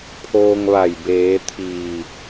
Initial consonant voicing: voiceless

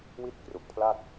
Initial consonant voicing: voiced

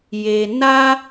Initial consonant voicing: voiced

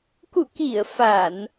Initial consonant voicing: voiceless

